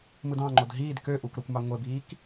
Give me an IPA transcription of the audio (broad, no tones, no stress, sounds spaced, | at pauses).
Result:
m ɯ d ɑ̃ ŋ͡ǃ o d ɦ iː d k ø ʔ u k ɾ o kʷ m ɑ ŋʷ e b iː k